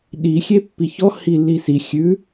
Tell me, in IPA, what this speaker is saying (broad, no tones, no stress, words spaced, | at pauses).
ɗi xʲepːiçɔ hilːisi xʲʉ